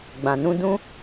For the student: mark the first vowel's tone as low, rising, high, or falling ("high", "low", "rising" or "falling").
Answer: low